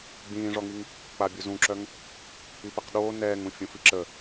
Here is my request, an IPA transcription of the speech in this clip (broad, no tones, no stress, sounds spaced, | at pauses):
ɡ͡b ĩː ʐ ɔ ŋ i ŋ | k͡p a bʲ u z ũ ǁ œ ŋ | i p i q ɗ oː n ɛː ŋ ũ fʲ ũ f i ǁ ə